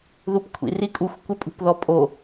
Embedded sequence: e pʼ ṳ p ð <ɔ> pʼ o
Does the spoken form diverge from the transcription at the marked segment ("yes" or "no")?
no